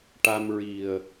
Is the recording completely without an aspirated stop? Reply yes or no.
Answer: yes